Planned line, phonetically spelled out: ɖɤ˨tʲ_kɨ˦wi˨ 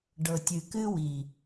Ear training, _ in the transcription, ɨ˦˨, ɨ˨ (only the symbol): ɨ˨